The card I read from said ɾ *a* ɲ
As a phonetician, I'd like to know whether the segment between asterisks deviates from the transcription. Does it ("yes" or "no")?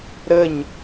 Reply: yes